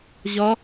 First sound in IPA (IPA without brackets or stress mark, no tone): ʑ